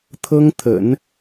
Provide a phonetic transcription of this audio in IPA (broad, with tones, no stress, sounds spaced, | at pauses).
t̪ʰ ɤ˥ ŋ t̪ʰ ə̰˨˩˦ n